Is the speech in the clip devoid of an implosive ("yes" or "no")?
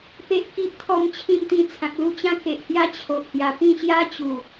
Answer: yes